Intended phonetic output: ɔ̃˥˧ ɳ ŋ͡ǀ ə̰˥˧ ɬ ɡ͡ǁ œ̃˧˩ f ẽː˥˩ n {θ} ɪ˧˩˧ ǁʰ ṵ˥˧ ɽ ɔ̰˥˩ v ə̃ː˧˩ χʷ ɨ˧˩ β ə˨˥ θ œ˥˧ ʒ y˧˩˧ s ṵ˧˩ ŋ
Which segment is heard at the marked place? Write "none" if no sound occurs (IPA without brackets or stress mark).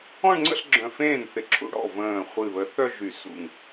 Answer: θ